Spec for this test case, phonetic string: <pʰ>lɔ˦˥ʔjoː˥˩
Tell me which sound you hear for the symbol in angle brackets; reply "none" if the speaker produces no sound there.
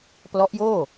p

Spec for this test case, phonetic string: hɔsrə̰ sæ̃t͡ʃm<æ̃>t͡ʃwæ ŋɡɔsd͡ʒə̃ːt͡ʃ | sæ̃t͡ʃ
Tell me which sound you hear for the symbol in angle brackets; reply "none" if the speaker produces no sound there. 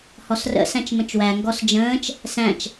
ə̃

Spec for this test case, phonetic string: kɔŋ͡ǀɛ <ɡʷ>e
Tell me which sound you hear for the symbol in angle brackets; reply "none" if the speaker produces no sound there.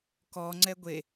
ɡʷ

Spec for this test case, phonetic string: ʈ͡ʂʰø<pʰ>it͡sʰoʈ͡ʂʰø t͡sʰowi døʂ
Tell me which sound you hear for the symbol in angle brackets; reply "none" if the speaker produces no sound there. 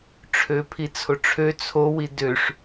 pʰ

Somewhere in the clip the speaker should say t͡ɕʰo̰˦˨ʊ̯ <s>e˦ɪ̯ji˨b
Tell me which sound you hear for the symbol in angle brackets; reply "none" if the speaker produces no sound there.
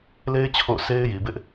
s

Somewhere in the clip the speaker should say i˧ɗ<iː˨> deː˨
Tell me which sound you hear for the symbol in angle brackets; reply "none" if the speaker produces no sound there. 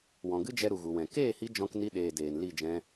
eː˨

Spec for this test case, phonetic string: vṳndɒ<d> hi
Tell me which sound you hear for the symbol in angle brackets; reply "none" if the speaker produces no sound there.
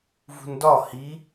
none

